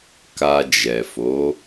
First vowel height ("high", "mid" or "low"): low